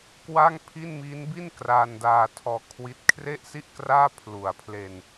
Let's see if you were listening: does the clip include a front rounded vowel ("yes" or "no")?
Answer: no